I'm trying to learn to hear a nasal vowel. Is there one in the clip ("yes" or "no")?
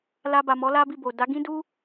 yes